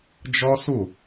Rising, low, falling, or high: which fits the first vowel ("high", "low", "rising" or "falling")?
high